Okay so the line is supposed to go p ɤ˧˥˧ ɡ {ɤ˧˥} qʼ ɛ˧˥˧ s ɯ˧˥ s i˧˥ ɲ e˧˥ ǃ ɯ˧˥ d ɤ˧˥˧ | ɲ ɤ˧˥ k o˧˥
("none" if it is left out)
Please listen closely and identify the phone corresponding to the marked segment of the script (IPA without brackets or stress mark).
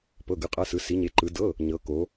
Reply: ɯ˧˥